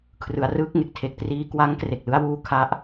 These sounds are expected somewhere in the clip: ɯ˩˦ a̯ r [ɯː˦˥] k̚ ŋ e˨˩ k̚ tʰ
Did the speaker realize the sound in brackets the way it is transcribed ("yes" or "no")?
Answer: yes